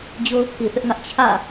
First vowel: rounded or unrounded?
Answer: rounded